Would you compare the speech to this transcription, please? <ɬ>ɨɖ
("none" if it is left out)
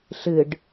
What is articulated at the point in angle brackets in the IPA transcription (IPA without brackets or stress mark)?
ɬ